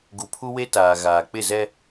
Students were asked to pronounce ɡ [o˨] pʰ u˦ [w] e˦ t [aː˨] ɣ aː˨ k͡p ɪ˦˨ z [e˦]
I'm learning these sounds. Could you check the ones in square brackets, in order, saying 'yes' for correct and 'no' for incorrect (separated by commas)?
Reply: no, yes, yes, no